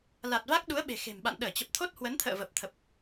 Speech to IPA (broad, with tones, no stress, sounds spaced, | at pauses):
l a˨˩ t̚ v a˦˥ k̚ ɗ u˨˦ ə̯ ɓ e̤˨˩ x e̤˨˩ m ɓ a̰˧˨ n ɗ əː˧˩ t͡ɕ ə˨˩ p̚ t̪ʰ o˦˥ t̚ h w ə˨˦ n t̪ʰ ə̰ː˧˨ v ə˨˩ p̚ t̪ʰ ə˨˩ p̚